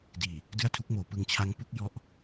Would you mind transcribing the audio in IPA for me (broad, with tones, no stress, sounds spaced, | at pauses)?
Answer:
d iː˨˩ | d ɯ˥˩ a̯ tʰ u˦˥ k̚ m oː˩˦ p ɯ˧ ŋ t͡ɕʰ a˦˥ ŋ p u˦˥ k̚ j ɔ˦˥ ʔ